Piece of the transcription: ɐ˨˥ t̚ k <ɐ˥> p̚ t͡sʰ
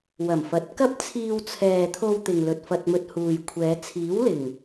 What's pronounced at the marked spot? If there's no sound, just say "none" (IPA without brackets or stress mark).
ɐ˥